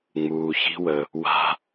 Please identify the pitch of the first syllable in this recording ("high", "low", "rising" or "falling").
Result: low